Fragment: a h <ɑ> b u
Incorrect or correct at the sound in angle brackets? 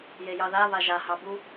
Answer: correct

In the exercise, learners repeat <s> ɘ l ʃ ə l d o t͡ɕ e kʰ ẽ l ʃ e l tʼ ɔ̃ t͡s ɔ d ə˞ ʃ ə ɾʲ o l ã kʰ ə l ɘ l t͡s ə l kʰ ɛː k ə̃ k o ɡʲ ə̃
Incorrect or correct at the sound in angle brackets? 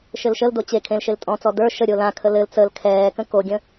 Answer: incorrect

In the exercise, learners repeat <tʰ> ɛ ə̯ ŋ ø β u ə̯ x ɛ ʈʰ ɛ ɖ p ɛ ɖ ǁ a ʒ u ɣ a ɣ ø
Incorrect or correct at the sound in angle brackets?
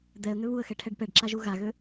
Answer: incorrect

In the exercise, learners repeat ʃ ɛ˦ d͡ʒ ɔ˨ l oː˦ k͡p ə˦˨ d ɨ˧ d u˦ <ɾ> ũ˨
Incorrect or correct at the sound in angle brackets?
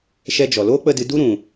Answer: correct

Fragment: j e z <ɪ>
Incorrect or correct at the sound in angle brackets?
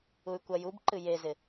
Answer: correct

